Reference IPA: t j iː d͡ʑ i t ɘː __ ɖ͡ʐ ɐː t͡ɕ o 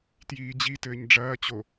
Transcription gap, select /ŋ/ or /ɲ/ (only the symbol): ɲ